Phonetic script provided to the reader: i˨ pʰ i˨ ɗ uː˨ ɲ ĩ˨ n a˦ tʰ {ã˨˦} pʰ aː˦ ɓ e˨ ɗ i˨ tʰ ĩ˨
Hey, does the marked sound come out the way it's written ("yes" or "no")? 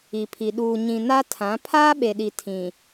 yes